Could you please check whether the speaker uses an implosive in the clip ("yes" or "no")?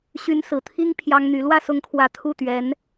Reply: no